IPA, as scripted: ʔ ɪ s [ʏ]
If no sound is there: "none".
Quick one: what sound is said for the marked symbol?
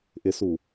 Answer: u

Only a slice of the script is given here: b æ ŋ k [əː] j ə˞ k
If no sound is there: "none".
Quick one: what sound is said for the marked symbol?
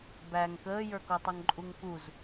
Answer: əː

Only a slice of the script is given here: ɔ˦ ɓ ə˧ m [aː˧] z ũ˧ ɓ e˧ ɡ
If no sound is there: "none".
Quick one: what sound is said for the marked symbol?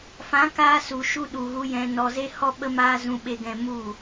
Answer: aː˧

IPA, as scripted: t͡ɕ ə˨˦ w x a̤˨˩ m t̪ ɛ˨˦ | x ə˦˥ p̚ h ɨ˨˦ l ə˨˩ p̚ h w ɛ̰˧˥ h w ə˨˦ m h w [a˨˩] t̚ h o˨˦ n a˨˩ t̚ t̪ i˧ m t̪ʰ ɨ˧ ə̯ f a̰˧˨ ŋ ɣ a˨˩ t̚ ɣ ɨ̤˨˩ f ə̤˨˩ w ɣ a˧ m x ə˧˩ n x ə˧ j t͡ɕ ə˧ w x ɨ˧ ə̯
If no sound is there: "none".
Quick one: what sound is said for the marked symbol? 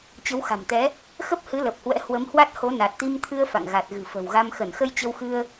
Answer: a˦˥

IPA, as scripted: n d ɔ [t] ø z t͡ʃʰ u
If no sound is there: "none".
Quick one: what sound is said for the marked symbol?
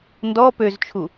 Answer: p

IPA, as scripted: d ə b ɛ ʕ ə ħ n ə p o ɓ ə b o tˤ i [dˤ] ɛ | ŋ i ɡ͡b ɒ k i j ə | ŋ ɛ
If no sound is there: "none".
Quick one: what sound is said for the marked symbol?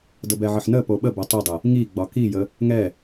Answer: dˤ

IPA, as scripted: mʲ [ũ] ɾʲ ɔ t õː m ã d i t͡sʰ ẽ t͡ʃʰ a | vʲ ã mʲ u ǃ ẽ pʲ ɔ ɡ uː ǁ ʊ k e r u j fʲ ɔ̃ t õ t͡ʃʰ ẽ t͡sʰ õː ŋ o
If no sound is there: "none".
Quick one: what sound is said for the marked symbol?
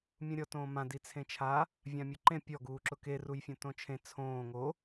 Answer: ũ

